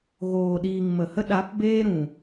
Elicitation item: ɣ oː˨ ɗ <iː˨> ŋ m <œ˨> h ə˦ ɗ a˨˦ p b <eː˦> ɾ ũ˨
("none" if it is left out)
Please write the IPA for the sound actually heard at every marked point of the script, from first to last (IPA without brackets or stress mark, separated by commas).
iː˨, ə˨, eː˦